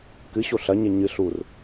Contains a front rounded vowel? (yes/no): no